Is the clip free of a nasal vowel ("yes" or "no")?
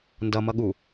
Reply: yes